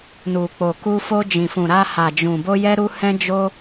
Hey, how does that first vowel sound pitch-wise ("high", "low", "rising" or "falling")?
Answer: low